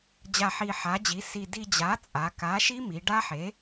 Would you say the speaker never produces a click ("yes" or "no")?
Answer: yes